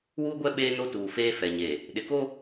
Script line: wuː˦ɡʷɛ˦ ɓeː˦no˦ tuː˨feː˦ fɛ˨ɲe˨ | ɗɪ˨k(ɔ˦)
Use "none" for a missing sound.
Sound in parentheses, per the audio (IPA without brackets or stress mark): o˦